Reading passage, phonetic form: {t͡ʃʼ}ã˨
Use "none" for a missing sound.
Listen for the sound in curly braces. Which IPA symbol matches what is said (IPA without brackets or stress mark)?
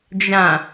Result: d͡ʒ